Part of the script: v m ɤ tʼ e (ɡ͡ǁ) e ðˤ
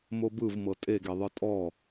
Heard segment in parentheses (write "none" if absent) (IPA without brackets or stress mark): ɡ